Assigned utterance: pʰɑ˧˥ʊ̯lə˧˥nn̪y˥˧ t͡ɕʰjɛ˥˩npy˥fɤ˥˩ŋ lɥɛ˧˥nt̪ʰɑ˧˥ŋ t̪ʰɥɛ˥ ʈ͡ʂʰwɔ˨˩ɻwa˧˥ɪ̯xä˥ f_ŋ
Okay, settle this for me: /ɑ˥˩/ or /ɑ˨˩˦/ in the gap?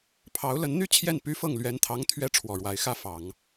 ɑ˨˩˦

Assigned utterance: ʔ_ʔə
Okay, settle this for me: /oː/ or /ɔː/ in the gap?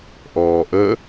ɔː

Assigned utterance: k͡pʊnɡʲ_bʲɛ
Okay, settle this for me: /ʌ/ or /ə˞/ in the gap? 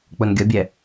ʌ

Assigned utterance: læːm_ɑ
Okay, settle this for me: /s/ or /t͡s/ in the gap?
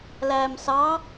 s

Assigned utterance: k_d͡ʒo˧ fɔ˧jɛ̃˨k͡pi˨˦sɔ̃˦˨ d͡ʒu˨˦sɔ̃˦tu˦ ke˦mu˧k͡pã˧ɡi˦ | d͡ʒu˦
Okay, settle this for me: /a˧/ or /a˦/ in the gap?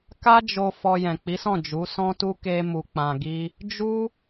a˦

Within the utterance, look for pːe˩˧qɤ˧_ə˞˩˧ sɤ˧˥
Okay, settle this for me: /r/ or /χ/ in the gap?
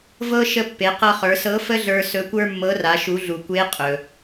χ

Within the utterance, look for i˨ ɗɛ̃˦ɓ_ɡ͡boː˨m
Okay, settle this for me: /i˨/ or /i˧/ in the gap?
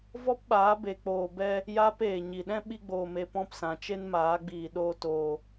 i˧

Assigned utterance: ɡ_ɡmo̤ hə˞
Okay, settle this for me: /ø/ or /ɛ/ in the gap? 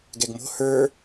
ɛ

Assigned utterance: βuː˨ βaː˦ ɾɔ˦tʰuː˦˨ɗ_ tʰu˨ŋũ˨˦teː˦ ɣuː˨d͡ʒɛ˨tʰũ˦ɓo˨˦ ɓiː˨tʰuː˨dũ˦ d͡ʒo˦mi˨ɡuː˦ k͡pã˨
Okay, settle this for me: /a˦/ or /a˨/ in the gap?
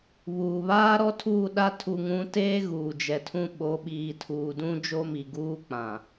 a˦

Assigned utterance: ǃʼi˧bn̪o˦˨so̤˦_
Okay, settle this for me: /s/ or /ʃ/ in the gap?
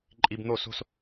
s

